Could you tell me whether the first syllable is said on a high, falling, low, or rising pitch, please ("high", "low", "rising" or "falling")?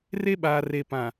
high